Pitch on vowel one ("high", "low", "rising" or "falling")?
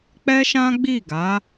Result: high